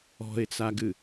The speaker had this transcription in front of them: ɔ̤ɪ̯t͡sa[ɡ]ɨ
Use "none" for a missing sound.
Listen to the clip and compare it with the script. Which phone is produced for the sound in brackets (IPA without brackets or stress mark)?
ɡ